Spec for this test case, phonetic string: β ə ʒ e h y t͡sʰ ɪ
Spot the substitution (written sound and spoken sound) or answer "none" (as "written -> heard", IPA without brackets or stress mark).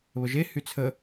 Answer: ɪ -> ə